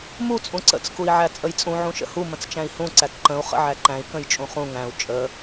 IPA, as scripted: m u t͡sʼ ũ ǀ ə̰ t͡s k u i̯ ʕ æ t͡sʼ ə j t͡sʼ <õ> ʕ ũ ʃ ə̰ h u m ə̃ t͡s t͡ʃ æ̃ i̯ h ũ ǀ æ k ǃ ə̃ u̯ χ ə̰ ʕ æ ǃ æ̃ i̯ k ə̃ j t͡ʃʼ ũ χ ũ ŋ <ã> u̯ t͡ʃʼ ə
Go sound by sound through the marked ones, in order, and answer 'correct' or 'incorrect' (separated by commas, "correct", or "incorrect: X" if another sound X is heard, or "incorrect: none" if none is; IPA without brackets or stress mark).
incorrect: ũ, incorrect: æ̃